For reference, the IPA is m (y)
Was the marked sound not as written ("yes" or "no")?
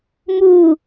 yes